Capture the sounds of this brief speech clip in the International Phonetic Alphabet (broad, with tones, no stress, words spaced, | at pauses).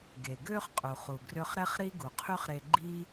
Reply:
ɡeː˩ɡøː˥χqʼu˩χu˩ ɡrø˥χ ɾɛ˥χ ɾi˥ɡu˩qʰy˥χɾe˧ ɡ͡ǃiː˥